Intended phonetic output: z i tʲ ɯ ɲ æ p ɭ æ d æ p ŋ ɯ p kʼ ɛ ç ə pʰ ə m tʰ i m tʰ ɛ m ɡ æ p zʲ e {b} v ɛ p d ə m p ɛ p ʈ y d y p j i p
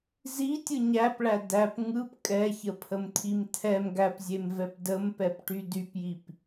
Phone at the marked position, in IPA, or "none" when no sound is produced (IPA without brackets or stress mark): m